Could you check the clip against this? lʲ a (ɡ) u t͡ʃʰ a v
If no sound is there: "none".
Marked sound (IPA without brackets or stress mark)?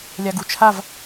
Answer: ɡ